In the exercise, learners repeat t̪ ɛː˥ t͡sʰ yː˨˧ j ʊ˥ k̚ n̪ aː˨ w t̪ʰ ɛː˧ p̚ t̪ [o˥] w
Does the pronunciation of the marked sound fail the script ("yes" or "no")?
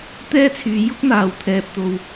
yes